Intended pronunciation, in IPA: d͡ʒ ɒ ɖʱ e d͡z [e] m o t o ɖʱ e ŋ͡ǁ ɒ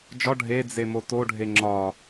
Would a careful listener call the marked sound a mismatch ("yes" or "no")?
no